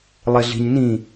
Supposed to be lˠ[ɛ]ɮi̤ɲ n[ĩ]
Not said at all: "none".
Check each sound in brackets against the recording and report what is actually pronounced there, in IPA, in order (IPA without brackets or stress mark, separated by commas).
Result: e, ĩ